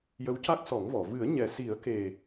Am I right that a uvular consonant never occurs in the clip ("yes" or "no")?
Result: yes